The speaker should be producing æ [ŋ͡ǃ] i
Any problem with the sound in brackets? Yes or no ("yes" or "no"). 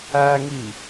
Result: yes